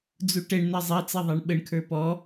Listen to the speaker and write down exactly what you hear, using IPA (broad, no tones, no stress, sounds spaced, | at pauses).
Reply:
d͡z u ʈ ɛ ɳ n ɛ zˤ ɛ t͡s ɛ ðˤ æ ɳ ɓ ə ɳ kʰ ə˞ p ɔ